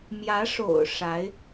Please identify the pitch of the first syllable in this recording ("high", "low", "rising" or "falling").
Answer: rising